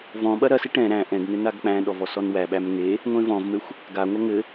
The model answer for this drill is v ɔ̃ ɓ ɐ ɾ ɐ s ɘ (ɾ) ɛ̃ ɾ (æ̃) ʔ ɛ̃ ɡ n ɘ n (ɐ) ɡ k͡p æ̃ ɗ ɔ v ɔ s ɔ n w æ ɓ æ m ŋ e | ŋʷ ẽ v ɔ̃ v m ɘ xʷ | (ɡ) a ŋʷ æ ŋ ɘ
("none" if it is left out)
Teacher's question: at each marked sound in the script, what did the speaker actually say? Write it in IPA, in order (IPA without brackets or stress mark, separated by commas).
ʈ, æ̃, a, ɡ